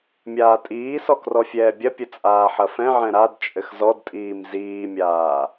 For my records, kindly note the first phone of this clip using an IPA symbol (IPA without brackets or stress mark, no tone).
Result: mʲ